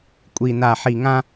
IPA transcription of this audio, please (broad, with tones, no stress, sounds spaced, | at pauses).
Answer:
kʷʼ i˨ n a˨ ħ i˨ ŋ ã˦